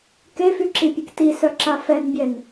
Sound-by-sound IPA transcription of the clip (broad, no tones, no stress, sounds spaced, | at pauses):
k e f y ǁ i pʲ e k t i s œ ǁ a f ɛ n bʲ ɛ n